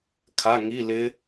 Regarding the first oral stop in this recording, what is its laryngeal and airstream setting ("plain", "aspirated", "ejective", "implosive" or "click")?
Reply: aspirated